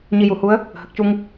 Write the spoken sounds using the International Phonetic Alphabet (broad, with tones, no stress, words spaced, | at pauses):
ɲi˧ju˨˩˦ hu˧˥ə̯ | hə˨˩k̚cu˧ŋ